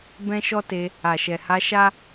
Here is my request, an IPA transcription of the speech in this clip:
b ɛ̃˦ ʃ ɔ˦ t e˧ | a˨ ʃ ɛ˨ h a˧ ʃ a˦

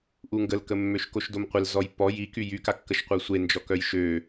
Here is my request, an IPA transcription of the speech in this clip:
ʔ u ŋ ɡ ə l k ə mː ø ʃ k o ʃ d o m qʷ ɪ l z ɔ j pː ɔ j i k y j y k a kː ə ʃ qʷ œ sʷ e n d͡ʒ ɔ k œ j ʃ ø

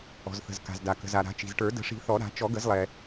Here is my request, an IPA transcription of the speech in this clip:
ɔ̤˩ z θ ə̤˩ z k a̤˩ z d a˩ k ə̤˩ z a˩ ɾ a̤˨˩˦ t͡ʃ i̤˩ z ʈ ə˞˨˩˦ d ə̤˨˩˦ ʂ i̤˨˩˦ θ ɔ˨˩˦ ɾ a̤˨˩˦ t͡ʃ ɔ˨˩˦ ɡ ə˨˩˦ z lˠ ɛ˩

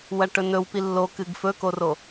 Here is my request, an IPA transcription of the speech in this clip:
w ɐ ʈ ɵ n ɵ w p i lː o k ɨ ɡ f ɵ k o r o

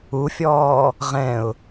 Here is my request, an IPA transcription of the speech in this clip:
u fʲ ɔː | ʁ ɛ̃ ʊ̯

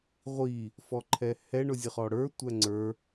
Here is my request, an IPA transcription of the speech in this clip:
ʁʷ i | f ɔ ǃʰ ɛ h ɛ ɳ ʊ zʲ ə χ ɔ ɽ ə˞ tʷ æ ŋ͡ǀ ə˞

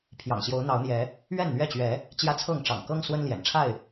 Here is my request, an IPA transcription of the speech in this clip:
pʰ j ɑ̰˨˩ ŋ ɕ j o˨˦ ʊ̯ n̪ ɑ˨˦ ʊ̯ n̪ j ɛ˨˦ | ɥ ɛ˥˨ n n̪ ɥ ɛ˥˨ t͡ɕ ɥ ɛ˨˦ | t͡ɕ j ä˦ t͡sʰ ɤ˥˨ ŋ ʈ͡ʂ ɑ̰˨˩ ŋ k ɤ˦ ŋ s w ə˦ n l j ɛ̰˨˩ n ʈ͡ʂʰ a˥˨ ɪ̯

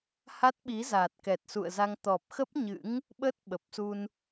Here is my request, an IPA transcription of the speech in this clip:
h a˦˥ t̚ ɓ i˨˦ z aː˨˩ t̚ k ɛ˨˩ t̚ s ṵ˧˨ ə̯ z a˧ ŋ t̪ ɔ˨˩ p̚ x ə˦˥ p̚ ɲ ɨ̰˧˥ ŋ | ɓ ə˦˥ t̚ ɓ ə˨˩ p̚ s u˧ n

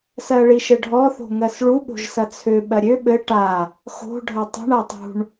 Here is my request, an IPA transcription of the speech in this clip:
s ɜ ɭ i ʃ ɘ ɖʱ ɔ θ o̤ ŋ ɜ s ɭ u ɓ o̤ ʒ s ɐ t͡sʰ ø ɓ ɜ ɾʲ ø ɓ ɘ ʈ a | x o̤ ɖʱ ɐ tˤ ṳ ɳ a tˤ ṳ ɳ

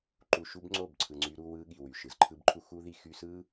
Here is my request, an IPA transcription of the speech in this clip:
ǃ u˧ ʃ u˦ b ŋ͡ǀ o˦˨ b ǀʰ ɯ˧ ŋ͡ǀ y˦ ɾ u˦ w ɯ˦ ɠ i˨ w y˨ ʃ ɯ˨ z ǃʰ ɯ˦ b ǃʰ u˦ x u˦ ð i˧ x y˦ s ɯ˦

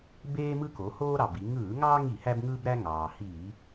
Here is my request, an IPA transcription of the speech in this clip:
b eː˦ m ɯ˦ k o˩˧ h oː˦ ɾ ɑ˩ b i˩˧ ŋ ɯː˧˩˧ ŋ ɑː˦ ŋ i˧˩˧ h æ˦ b ŋ ɯː˦ b ɾ æ˦ ŋ ɑː˩ h iː˧˩˧

